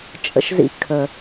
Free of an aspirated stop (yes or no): no